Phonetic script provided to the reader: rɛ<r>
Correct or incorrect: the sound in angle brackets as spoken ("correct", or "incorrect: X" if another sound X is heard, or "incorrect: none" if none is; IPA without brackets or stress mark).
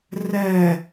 incorrect: none